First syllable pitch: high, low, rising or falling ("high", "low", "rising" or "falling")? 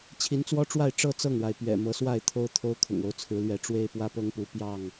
rising